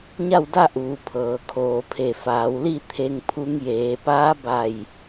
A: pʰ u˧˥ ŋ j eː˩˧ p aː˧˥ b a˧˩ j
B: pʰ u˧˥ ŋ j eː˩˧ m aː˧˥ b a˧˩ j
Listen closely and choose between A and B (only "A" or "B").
A